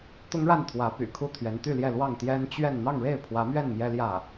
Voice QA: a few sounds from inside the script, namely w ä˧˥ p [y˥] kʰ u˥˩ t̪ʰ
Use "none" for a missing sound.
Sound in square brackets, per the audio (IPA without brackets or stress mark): y̰˨˩